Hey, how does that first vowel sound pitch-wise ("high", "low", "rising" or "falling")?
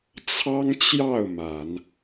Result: high